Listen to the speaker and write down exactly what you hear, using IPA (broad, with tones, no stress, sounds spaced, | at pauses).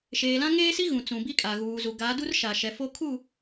ʃ eː˨ l ã˦ ŋ eː˦ s i˦ ɣ ũ˨ t͡s ũ˨ b i˦ kʼ a˨ ɣ uː˨ z u˨ ɡ a˨˦ d u˦ r ʃ a˨ ʃ ɛ˨ f o˦ kʰ u˦˨